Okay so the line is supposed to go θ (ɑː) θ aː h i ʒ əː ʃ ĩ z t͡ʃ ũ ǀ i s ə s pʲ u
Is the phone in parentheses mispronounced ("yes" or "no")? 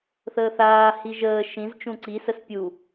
yes